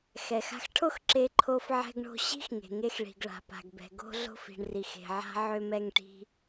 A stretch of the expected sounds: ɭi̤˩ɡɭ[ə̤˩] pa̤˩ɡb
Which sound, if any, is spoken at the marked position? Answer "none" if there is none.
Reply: a̤˩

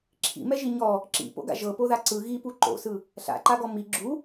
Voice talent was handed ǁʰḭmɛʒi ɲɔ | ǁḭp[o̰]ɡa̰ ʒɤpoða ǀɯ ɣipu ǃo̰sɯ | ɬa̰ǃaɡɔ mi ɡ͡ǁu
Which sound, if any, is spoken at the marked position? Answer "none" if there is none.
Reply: o̰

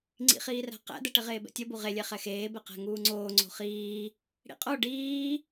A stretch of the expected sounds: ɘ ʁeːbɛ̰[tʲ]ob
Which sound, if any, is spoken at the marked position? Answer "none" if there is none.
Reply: tʲ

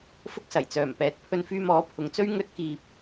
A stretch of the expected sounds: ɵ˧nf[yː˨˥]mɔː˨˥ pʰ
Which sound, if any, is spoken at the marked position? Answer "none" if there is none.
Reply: yː˧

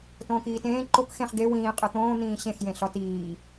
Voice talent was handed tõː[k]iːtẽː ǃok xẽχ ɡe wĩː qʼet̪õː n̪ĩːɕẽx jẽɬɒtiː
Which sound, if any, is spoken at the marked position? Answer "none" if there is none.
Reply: k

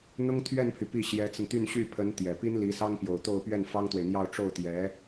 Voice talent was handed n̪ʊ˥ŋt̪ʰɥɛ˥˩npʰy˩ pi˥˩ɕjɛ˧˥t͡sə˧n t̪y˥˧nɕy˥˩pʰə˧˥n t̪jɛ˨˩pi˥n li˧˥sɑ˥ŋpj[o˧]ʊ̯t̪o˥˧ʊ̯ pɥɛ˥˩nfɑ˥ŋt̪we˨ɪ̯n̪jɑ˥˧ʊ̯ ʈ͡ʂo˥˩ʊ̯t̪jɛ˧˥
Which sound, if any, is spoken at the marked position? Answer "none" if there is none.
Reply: o˨˩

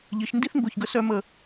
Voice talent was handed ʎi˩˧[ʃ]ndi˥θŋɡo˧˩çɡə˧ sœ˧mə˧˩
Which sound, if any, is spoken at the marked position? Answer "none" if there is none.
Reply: ʃ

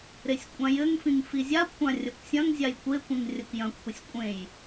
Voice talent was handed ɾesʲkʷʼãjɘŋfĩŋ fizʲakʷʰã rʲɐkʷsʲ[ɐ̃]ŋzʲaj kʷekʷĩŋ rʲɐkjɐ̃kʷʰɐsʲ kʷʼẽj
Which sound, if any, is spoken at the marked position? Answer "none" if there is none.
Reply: ɐ̃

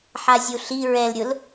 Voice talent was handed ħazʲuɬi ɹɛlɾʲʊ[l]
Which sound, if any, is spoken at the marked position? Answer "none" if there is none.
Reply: l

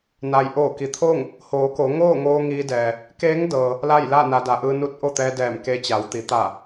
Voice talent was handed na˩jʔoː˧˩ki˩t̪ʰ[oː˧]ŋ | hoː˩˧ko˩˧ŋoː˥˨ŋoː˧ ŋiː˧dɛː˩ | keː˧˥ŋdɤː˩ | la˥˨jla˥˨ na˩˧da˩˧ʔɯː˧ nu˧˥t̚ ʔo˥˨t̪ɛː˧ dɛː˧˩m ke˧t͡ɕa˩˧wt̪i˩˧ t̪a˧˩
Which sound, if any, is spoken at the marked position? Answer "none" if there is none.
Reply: oː˥˨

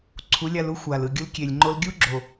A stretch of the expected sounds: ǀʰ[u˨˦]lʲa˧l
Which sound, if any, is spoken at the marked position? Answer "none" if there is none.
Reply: u˨˦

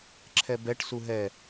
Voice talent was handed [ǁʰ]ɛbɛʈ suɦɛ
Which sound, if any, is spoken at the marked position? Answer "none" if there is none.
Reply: ǁʰ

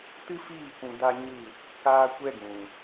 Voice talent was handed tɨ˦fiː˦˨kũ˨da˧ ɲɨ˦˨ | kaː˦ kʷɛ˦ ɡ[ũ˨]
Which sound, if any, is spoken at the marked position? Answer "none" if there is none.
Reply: ũ˨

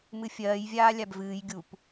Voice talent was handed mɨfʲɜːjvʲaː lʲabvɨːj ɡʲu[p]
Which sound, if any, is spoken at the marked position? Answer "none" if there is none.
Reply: p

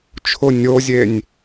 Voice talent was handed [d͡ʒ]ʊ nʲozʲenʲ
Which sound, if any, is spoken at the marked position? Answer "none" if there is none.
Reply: t͡ʃʰ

